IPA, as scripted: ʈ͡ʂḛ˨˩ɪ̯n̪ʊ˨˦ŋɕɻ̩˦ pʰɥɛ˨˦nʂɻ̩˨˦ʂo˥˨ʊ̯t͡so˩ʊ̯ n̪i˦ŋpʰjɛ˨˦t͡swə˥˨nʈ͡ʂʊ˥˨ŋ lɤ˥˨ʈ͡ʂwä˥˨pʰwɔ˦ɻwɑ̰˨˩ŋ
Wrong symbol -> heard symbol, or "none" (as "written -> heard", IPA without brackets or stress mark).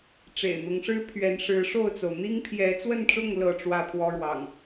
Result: ɕ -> ʂ